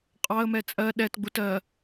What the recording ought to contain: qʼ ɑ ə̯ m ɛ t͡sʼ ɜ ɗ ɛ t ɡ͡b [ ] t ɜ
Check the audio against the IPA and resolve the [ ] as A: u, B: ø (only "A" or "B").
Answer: A